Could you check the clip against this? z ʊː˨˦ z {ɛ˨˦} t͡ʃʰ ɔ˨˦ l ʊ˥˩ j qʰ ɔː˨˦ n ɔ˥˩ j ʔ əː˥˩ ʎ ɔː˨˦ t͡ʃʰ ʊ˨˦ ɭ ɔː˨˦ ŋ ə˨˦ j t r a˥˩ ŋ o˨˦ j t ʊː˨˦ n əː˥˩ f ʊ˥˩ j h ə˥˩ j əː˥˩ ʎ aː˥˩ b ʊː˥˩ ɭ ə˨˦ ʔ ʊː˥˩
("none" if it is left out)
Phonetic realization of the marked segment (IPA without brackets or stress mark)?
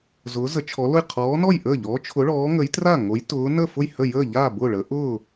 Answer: ə˨˦